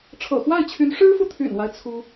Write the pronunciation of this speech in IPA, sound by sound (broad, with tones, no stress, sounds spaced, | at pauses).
ʈ͡ʂʰ ɤ̰˨˩ x w a˥˩ ɪ̯ t͡ɕʰ y˧˥ n ʂ ɻ̩˥ f u˨ t̪ʰ y̰˨˩ n w a˦ ɪ̯ t͡sʰ u˥